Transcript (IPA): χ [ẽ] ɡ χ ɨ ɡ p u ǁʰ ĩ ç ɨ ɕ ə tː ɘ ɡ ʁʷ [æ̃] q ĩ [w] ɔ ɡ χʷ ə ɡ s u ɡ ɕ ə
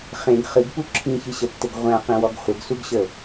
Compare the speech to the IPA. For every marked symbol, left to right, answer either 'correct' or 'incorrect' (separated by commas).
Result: correct, correct, correct